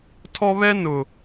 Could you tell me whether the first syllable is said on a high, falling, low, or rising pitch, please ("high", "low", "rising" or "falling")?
high